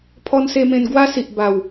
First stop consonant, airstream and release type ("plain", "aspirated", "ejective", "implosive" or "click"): aspirated